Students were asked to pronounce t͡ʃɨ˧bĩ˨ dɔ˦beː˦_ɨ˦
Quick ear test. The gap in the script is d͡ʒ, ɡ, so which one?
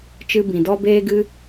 ɡ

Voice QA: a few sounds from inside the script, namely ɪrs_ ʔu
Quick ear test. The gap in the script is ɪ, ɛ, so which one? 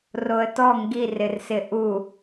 ɪ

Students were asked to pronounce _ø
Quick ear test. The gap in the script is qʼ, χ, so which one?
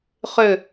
χ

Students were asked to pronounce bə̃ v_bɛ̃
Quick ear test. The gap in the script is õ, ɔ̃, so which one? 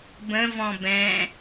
ɔ̃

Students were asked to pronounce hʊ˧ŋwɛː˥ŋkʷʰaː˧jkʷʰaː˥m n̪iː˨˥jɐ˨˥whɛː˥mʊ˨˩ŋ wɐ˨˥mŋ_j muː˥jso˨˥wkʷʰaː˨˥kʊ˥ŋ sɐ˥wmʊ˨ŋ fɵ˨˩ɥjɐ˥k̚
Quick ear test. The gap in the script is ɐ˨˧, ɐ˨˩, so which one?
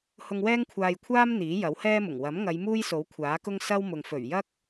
ɐ˨˧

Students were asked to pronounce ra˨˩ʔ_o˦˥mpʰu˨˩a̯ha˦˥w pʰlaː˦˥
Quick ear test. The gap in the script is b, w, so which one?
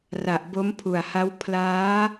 b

